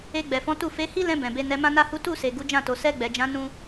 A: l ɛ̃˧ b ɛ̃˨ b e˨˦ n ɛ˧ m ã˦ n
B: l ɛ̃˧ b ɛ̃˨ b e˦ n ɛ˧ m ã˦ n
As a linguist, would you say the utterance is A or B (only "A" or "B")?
A